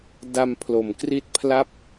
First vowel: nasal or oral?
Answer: oral